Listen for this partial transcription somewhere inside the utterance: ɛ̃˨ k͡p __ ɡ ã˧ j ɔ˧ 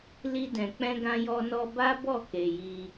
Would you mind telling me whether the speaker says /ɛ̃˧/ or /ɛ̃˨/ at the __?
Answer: ɛ̃˧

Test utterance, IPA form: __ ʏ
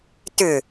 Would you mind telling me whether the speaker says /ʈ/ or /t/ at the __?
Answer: t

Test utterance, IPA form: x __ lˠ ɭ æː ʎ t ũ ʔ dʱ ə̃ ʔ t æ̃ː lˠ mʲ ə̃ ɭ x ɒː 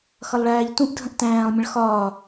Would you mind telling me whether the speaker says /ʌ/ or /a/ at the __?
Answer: ʌ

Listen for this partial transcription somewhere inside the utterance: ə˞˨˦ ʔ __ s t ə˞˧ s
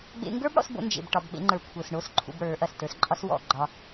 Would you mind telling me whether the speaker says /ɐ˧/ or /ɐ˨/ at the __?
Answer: ɐ˨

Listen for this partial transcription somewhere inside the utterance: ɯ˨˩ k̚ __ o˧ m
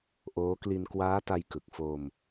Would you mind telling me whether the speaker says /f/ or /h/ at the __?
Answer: f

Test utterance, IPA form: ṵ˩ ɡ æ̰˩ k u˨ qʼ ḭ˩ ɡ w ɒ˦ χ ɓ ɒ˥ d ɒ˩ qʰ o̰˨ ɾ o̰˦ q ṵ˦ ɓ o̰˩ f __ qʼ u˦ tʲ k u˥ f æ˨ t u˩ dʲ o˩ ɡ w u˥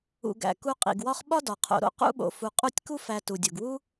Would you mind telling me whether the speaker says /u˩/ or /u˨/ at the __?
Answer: u˨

